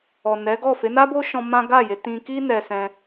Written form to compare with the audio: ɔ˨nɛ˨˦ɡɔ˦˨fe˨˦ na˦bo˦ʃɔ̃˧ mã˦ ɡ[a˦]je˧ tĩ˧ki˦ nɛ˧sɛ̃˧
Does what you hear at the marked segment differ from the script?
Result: yes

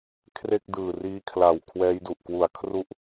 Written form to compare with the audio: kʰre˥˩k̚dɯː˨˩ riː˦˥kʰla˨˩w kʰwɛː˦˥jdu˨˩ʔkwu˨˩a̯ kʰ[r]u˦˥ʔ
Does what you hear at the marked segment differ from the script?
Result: no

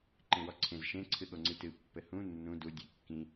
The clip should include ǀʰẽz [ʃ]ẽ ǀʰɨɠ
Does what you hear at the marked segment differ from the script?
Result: no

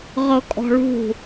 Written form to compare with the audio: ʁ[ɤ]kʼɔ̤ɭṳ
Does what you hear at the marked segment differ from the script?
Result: no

